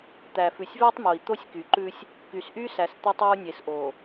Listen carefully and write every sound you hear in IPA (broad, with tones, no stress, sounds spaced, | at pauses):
t̪ æ˨ f ʉ˨ sʲ v æ˦ tˤ m o˨ i̯ t̪ o˦ sʲ k y˨ ǃ ʉ˦ sʲ | k y˨ s ʔ y˦ s æ˨ s t̪ ʉ˦ tˤ ɔ˦ u̯ nʲ e˨ s ʔ o˨